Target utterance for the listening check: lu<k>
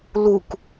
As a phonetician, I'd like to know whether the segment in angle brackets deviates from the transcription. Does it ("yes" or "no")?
no